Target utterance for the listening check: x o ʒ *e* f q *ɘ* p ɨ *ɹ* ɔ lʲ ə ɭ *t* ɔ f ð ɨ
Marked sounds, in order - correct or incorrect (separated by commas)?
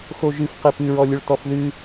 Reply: incorrect, incorrect, correct, correct